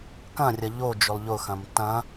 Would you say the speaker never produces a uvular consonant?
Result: yes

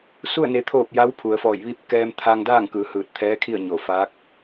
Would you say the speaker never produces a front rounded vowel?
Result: yes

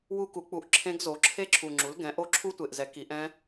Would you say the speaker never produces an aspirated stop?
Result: no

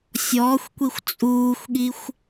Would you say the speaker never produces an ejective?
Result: no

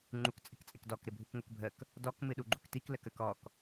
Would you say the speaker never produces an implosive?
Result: no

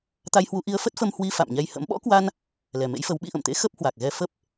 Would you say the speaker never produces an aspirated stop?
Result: yes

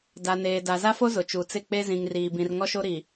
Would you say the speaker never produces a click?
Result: yes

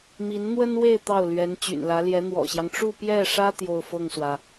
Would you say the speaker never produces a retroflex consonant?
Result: no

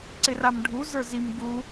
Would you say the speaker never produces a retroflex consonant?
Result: no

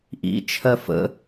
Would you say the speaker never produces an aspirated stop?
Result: no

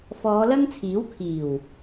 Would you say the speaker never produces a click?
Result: yes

